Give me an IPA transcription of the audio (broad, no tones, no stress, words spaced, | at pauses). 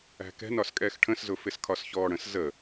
æ̤kɛ̤n ɒskʼɛːxʈʰə̃szʊ fɪskʰɒsçɔːɽə̃s zə